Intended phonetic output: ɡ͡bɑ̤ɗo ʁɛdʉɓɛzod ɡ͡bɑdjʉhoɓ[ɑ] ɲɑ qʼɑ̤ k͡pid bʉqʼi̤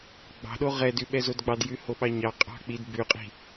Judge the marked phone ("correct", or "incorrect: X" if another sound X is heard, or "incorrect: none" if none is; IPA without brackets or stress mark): correct